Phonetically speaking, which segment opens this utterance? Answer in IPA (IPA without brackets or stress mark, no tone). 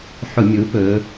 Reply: ħ